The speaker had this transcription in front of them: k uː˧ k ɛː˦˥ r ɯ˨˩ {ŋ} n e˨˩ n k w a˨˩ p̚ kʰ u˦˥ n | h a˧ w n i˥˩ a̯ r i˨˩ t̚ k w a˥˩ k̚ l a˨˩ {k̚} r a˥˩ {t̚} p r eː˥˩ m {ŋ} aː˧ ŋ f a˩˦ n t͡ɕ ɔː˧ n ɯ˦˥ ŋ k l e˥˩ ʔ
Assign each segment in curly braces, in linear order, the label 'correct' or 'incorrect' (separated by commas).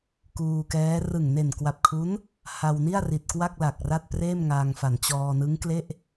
correct, correct, correct, correct